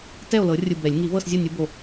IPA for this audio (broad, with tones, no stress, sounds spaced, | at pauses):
t ɛ˥˨ o̯ l ɤ˨˩˦ rʲ ɯ˨˩ b ɛ˨˩˦ lʲ ŋ i˨˩˦ v ɤ˥˨ s zʲ ɔ˥˨ nʲ u˨˦ b o˨˩